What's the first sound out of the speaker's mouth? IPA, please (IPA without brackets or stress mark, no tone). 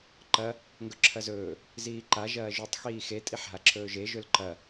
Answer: ǃ